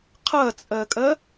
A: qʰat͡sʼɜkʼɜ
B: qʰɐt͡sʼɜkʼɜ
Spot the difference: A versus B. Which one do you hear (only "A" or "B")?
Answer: B